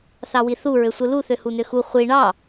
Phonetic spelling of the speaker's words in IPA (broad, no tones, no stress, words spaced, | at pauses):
θɑwiθu ɹøsʷɯlu θøhunøxu χʷi ɳɑ